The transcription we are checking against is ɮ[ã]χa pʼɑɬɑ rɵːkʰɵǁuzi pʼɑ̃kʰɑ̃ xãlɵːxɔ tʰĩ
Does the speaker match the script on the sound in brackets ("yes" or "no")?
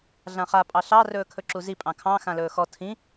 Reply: yes